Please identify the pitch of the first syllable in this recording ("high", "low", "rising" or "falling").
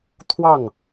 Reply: falling